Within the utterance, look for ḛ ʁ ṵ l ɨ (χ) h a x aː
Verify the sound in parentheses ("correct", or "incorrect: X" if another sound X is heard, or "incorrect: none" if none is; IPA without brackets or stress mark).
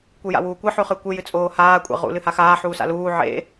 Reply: incorrect: none